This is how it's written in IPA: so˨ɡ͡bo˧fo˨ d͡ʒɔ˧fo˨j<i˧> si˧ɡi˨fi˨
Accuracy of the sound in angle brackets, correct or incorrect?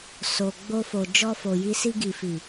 correct